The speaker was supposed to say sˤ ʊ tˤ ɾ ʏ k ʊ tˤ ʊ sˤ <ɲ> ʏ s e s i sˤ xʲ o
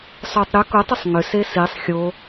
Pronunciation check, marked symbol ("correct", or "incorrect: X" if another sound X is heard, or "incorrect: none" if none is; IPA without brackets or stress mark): incorrect: ŋ